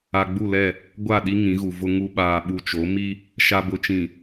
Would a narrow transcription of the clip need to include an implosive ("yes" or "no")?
yes